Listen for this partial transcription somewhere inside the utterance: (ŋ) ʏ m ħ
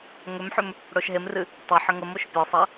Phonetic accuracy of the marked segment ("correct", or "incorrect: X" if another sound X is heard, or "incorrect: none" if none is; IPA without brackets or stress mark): correct